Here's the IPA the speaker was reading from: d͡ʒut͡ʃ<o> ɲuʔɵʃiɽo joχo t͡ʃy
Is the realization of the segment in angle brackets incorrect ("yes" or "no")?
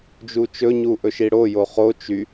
yes